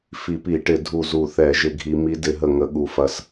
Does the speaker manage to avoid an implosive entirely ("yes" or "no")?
no